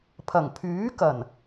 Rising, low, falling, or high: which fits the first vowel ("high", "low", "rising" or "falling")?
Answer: low